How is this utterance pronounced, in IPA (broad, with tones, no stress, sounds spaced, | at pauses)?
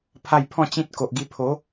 pʰ a˥˧ j pʰ ɔ̃˥˧ t͡ɕ ĩ˦ t̚ k o˨ ʔ ɡ i˧ pʰ o˨˦